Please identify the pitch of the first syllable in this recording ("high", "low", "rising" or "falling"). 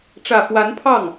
low